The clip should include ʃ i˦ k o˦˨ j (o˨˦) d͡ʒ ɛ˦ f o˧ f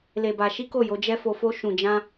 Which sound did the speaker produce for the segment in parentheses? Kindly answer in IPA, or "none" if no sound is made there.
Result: o˨˦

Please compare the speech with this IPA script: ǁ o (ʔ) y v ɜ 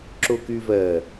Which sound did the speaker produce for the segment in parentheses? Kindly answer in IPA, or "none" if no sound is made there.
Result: k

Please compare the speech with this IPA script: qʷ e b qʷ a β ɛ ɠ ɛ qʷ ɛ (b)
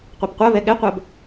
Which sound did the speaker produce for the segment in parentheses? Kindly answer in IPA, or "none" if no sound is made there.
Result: b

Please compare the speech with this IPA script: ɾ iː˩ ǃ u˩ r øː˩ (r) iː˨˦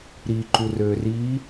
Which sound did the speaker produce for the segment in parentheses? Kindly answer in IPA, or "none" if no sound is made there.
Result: r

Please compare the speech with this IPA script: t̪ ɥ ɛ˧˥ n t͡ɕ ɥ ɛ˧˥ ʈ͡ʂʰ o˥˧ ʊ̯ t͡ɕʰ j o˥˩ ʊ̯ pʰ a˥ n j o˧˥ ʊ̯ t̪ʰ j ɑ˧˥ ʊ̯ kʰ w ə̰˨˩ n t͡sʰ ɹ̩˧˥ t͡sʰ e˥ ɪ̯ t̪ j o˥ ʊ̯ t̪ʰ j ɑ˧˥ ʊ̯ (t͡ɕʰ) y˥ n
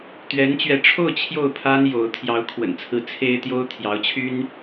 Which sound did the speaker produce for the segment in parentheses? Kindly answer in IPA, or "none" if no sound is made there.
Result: t͡ɕʰ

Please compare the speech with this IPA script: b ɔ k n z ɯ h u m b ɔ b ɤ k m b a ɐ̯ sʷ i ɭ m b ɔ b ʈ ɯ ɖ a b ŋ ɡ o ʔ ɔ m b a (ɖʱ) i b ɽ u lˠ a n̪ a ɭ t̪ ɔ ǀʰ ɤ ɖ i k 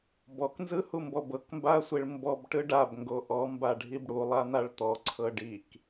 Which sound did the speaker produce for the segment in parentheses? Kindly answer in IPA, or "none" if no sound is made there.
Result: ɖʱ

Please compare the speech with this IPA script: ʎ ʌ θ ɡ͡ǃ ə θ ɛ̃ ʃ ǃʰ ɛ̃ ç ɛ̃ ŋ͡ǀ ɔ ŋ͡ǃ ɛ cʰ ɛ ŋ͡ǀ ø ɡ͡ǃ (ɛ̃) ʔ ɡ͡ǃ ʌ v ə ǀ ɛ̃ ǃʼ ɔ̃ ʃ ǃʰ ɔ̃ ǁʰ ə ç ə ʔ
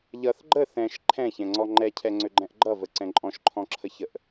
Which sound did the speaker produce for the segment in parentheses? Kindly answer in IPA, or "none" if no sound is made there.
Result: ɛ̃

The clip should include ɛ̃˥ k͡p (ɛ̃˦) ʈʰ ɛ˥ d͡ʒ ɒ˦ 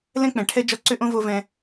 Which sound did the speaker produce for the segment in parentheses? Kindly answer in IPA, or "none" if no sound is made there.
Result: ɛ̃˨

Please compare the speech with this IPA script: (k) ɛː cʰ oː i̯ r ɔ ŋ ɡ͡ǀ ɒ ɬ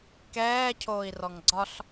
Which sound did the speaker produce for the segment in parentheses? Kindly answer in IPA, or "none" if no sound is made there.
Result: k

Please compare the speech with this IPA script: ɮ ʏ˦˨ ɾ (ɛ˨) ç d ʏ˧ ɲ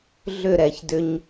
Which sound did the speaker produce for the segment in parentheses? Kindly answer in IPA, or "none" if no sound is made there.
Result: ɛ˨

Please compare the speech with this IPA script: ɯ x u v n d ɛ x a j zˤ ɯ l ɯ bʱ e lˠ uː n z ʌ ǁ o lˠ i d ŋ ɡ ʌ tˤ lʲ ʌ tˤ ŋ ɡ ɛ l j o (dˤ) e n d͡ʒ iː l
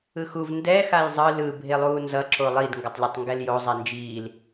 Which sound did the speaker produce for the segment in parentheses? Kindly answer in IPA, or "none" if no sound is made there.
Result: zˤ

